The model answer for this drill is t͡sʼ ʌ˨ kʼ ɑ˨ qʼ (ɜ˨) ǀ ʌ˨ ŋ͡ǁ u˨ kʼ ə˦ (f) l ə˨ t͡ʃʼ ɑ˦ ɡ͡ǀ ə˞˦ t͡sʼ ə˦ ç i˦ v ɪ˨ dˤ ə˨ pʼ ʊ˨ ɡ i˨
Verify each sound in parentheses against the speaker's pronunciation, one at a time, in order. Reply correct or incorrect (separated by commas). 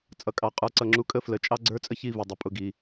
incorrect, correct